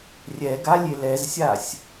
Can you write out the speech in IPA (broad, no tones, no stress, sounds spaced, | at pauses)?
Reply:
rʲ ɛ ɡ a lʲ e l ɛ z sʲ a sʲ